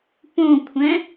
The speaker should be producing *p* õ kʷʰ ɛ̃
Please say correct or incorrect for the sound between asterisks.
correct